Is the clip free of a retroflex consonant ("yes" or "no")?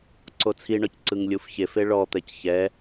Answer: no